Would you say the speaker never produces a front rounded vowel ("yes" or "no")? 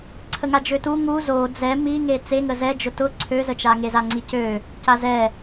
no